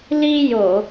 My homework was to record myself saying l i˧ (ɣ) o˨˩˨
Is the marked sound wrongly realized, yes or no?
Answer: yes